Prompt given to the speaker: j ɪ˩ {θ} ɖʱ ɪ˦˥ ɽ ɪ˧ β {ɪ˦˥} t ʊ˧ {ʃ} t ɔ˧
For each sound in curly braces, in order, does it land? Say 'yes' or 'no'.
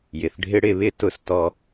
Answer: yes, yes, no

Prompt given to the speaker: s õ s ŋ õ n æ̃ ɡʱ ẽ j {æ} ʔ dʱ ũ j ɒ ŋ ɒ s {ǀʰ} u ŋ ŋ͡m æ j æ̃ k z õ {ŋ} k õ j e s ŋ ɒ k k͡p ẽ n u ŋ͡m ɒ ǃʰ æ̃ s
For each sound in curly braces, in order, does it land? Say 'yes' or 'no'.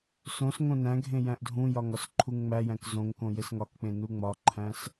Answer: no, no, yes

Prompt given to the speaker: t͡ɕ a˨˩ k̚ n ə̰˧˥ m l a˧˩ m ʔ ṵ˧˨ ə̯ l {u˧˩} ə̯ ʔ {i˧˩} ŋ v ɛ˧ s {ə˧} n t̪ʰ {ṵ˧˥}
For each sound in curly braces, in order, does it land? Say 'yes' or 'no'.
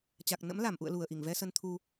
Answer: yes, yes, yes, no

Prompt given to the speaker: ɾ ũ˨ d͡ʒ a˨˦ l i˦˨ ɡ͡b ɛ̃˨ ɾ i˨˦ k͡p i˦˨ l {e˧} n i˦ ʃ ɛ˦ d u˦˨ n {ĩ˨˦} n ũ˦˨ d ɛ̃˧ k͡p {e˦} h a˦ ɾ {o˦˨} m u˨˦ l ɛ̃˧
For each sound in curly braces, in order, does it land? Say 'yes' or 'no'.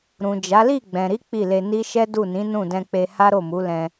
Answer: yes, yes, no, yes

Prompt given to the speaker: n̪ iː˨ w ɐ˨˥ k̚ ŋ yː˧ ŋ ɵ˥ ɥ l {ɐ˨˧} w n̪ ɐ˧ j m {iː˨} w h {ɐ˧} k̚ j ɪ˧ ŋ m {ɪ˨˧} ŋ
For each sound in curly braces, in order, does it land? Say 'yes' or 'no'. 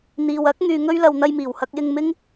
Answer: no, no, yes, no

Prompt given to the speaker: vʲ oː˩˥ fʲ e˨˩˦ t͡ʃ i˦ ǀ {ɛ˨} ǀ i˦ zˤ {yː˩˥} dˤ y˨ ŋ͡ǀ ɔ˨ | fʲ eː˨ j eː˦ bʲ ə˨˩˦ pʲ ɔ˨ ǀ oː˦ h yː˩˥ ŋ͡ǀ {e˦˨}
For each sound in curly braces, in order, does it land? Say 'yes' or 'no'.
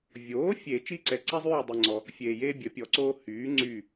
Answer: yes, no, no

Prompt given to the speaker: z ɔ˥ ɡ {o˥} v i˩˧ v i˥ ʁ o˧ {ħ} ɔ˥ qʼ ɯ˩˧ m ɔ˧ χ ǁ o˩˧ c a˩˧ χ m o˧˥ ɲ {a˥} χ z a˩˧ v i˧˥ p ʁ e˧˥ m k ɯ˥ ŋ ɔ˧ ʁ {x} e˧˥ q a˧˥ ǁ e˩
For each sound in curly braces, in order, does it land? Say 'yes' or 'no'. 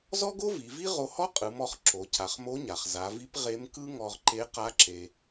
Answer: yes, no, no, no

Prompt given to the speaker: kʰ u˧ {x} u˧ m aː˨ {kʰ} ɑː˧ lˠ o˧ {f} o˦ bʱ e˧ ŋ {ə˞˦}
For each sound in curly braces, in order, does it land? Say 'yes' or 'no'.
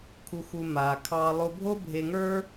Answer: yes, yes, no, yes

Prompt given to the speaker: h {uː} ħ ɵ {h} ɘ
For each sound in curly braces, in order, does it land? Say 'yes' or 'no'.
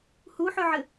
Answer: no, no

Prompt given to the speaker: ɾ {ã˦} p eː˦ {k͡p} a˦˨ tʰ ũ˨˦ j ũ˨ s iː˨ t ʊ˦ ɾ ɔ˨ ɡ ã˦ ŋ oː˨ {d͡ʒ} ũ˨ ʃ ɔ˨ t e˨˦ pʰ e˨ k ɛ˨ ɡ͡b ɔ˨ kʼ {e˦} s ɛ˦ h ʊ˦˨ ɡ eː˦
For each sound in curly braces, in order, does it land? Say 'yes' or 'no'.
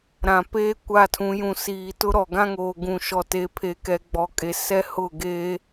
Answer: no, no, no, no

